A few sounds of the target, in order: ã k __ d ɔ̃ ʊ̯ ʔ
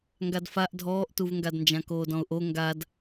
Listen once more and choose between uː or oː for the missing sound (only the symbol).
oː